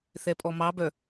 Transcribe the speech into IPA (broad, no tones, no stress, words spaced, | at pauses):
θɛpʼɔmɑbœ